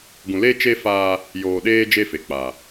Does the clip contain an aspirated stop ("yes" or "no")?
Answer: no